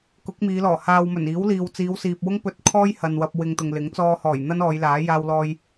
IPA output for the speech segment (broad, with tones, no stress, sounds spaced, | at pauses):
k ʊ˨˥ k̚ m iː˨˧ l ɔː˨˩ h aː˧ w m ɵ˨˩ n iː˨˥ w l iː˨ w t͡s iː˨˧ w s iː˨ p̚ w ʊ˥ ŋ p ɵ˧ t̚ kʰ ɔː˥ j h ɐ˨ n w ɐ˧ p̚ w ɪ˧ ŋ t̪ ʊ˨ ŋ l ɪ˨˥ ŋ t͡s ɔː˧ h ɔː˨˩ j n̪ ɐ˥ n ɔː˨˧ j l aː˨˥ j aː˧ w l ɔː˧ j